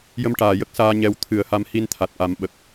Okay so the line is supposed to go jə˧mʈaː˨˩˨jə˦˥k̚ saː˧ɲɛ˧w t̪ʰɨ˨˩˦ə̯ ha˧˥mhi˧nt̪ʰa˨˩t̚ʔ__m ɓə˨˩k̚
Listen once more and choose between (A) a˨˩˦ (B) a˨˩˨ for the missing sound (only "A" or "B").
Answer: A